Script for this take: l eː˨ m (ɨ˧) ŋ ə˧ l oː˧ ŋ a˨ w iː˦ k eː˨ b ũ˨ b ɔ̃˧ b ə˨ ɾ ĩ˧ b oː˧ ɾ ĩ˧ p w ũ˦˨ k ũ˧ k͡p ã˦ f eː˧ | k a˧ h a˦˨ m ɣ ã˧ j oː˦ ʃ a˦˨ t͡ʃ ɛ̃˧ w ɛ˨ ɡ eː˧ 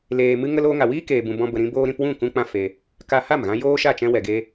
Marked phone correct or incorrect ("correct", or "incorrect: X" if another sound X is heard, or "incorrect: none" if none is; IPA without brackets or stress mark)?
correct